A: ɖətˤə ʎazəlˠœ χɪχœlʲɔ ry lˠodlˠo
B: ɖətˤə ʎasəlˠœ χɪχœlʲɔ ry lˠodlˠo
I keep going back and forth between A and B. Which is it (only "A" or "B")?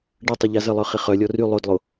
A